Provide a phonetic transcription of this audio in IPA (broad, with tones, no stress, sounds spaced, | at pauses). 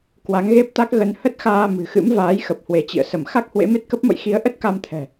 k w a˨˦ ŋ ɣ e˦˥ p̚ t̪ a˦˥ k̚ ɣ ə˧ n h ə˦˥ t̚ x aː˧ m ɨ̤˨˩ x ɨ̰˧˥ m v aː˨˦ j x ə˨˩ p̚ h w e˧˩ t͡ɕ ḭ˧˨ ə̯ s ə˧˩ m x a˦˥ k̚ h w ḛ˧˥ m e˦˥ t̚ k ə˦˥ p̚ m ə̰˧˨ j x i˨˦ ə̯ ʔ ə˦˥ t̚ k a˧ m t̪ʰ ɛ̤˨˩